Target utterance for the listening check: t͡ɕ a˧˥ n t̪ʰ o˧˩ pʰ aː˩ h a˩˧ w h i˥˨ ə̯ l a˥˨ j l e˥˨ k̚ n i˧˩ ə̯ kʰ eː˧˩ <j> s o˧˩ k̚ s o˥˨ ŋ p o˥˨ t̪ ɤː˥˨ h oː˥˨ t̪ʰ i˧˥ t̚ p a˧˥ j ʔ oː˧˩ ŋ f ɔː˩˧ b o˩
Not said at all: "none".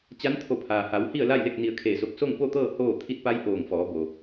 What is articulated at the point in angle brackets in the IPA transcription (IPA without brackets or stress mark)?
none